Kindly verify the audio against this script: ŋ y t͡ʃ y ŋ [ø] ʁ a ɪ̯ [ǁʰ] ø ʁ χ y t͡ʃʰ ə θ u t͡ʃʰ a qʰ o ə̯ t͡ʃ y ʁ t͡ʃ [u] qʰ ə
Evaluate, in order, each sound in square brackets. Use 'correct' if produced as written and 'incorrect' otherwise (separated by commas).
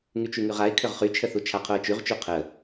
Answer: incorrect, incorrect, correct